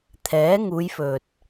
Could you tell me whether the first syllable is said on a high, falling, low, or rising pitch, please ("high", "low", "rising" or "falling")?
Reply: rising